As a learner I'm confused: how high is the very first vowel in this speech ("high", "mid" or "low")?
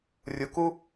high